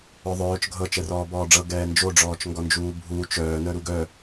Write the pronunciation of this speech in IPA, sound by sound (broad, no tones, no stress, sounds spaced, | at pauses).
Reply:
œ ðˤ œː t͡ʃ ɡʱ ɤ t͡ʃ ɛ r ɔː b ɔː ɖ͡ʐ ɤ ɡ ɛː n d͡ʒ o ɖ͡ʐ ɔː t͡ʃ ŋ ɡ ɔ n d͡ʒ uː bʱ uː t͡ʃ œː n œ ɾ u ɡ œ